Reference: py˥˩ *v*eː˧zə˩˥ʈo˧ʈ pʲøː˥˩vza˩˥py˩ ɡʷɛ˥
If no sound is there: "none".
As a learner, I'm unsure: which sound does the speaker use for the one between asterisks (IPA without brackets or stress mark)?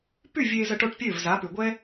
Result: vʲ